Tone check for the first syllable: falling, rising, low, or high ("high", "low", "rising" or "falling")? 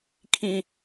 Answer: low